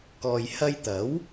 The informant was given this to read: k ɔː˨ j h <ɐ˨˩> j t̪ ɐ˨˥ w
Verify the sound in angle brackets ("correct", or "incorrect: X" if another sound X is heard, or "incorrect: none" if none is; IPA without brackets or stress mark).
incorrect: ɐ˧